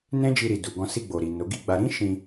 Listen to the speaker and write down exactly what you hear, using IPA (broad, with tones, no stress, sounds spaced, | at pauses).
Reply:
n ɛ̃˦ d͡ʒ i˧ ɾ i˨ d u˨ ɡ ɔ̃˧ s i˧ ɡ͡b o˨ ɾ i˨ n o˨˦ ɡ i˦˨ ɡ͡b a˧ ɾ ĩ˦ ʃ ĩ˧